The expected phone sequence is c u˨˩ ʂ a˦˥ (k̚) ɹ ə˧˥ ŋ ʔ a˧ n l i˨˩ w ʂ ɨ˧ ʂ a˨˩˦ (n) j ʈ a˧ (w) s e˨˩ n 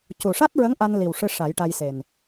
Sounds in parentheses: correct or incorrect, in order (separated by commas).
incorrect, incorrect, incorrect